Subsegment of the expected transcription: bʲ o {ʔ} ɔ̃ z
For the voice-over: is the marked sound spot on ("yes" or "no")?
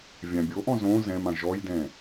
yes